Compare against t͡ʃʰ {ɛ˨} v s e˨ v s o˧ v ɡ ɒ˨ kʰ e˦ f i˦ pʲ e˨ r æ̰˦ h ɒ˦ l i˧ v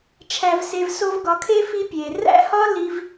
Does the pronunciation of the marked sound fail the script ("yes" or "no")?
yes